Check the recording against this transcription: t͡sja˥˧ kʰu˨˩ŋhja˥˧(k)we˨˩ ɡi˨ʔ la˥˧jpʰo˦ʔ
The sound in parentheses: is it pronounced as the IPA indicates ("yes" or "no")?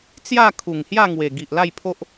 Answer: no